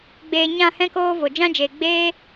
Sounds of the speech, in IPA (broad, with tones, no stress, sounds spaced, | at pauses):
ɡ͡b eː˧ ɲ ã˦˨ h ɛ̃˦ k oː˦ v o˨ d͡ʒ ã˦ d͡ʒ eː˨ ɡ͡b eː˦